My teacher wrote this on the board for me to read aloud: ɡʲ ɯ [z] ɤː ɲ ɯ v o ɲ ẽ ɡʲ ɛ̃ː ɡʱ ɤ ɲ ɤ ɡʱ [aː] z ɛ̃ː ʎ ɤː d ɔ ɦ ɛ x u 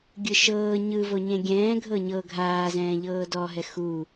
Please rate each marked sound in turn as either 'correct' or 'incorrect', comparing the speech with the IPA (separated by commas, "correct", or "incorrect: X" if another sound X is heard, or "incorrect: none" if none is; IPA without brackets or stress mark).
incorrect: ʃ, correct